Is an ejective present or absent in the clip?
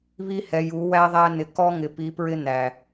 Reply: absent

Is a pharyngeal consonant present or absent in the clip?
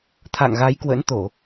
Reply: absent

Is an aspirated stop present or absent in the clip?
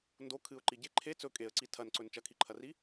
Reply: present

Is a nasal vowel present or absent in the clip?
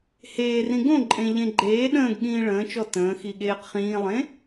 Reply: present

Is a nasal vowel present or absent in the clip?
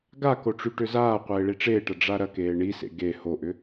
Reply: absent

